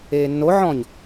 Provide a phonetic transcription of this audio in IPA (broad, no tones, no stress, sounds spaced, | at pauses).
eː nː o ʕ ɔ̃ ɲ